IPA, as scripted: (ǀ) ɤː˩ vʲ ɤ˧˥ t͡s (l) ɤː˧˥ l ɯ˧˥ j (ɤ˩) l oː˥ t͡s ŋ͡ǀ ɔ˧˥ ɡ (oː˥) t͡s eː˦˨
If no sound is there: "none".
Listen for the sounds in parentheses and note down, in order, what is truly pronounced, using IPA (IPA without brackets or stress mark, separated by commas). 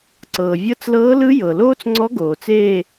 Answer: ǀ, l, ɤ˩, oː˩